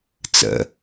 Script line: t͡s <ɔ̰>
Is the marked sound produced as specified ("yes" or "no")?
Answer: no